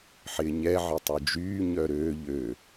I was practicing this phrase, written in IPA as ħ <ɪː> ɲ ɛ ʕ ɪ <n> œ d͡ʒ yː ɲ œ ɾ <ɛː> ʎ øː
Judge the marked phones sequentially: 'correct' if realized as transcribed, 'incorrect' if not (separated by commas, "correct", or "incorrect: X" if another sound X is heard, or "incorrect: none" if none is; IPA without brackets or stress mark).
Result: correct, incorrect: tˤ, incorrect: øː